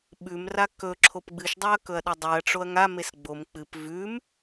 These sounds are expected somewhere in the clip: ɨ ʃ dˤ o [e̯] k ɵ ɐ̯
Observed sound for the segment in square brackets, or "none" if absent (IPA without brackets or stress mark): ɐ̯